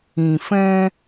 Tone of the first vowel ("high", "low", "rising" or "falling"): low